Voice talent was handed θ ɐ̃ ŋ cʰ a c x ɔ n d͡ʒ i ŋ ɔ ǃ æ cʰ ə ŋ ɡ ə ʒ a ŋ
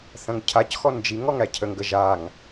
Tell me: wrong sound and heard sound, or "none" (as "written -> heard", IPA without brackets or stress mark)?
ǃ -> ŋ